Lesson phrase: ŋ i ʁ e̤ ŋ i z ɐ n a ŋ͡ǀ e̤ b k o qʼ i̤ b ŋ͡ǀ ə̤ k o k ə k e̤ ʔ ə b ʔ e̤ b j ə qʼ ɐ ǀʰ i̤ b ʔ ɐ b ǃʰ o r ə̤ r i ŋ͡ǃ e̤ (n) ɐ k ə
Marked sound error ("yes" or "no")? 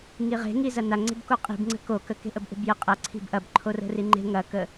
yes